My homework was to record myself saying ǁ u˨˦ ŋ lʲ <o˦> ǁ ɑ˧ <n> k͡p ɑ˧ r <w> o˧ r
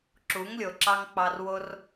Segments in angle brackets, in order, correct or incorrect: incorrect: o˨, incorrect: ŋ, correct

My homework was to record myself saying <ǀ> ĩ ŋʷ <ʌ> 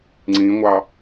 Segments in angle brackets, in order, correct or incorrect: incorrect: ŋ͡ǀ, incorrect: ɑ

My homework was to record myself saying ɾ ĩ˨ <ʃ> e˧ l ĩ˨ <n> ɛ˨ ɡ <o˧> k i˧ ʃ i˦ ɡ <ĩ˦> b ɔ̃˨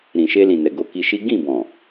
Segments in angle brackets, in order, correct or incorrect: correct, correct, incorrect: o˨˦, incorrect: ĩ˦˨

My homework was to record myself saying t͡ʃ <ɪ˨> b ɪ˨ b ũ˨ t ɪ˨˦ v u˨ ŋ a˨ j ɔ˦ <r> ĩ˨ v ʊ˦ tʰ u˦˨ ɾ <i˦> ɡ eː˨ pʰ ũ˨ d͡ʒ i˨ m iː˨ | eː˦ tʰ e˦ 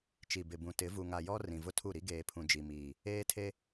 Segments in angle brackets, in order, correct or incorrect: incorrect: i˨, correct, correct

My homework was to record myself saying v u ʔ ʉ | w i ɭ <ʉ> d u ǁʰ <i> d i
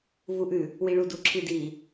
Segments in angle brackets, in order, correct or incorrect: incorrect: u, correct

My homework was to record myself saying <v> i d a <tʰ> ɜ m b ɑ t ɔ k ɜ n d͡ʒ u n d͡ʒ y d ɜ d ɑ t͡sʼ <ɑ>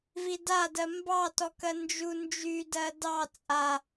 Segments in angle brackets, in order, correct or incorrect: correct, incorrect: d, incorrect: a

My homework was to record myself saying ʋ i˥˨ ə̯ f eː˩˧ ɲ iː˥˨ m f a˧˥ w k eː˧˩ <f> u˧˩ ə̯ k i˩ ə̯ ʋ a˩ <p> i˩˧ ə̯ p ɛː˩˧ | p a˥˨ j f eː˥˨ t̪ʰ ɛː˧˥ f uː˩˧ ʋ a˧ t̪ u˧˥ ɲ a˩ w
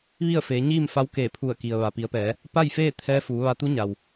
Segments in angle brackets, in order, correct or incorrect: incorrect: pʰ, correct

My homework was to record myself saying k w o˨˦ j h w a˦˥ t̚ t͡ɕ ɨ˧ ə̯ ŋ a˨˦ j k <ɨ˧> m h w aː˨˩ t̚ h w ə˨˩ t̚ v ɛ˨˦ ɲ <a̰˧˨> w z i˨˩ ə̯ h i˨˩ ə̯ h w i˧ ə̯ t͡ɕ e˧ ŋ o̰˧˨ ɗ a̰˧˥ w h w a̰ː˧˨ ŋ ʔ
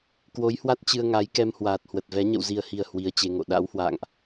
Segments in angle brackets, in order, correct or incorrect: incorrect: ɛ˧, incorrect: ə̰˧˨

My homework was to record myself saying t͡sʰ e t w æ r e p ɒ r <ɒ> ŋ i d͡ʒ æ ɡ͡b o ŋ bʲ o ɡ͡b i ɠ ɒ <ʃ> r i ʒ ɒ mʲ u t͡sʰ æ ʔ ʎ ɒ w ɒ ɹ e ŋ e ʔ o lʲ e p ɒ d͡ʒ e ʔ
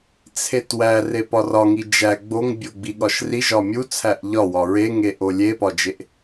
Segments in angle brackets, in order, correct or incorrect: correct, correct

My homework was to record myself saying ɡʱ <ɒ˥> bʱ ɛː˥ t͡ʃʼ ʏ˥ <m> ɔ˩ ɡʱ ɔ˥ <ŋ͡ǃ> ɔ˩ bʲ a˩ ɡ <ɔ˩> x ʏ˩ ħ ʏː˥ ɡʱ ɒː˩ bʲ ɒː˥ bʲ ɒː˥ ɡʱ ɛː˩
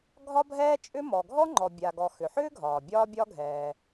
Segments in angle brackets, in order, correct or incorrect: correct, correct, correct, correct

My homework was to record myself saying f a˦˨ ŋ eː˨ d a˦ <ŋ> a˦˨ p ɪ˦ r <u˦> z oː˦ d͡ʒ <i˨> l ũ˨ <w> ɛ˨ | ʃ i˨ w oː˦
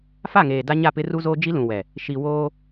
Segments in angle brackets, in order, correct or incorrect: incorrect: ɲ, correct, incorrect: i˦, correct

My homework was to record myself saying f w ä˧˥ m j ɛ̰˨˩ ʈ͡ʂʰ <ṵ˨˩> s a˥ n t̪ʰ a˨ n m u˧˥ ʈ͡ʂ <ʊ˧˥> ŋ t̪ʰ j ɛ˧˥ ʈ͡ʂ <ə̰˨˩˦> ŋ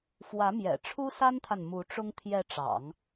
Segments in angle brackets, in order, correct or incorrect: incorrect: u˥, incorrect: ʊ˥, incorrect: ɑ̰˨˩˦

